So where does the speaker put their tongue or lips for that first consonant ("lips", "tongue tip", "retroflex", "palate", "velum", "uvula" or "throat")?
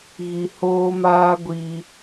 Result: velum